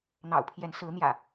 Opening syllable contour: low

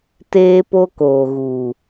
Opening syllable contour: high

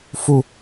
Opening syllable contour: low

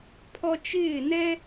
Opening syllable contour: high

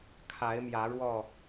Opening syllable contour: rising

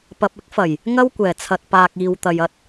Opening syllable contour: low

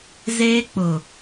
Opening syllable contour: high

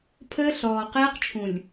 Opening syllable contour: high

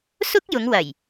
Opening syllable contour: high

